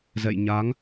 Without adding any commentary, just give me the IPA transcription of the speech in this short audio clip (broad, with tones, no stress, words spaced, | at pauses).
zɛ̰˧˨j ɲa˨˦ŋ